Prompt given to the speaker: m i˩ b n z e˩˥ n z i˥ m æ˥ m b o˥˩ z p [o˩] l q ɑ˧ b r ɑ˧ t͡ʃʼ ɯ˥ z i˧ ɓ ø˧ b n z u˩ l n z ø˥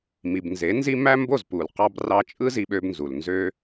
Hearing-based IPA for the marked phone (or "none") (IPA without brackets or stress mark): u˩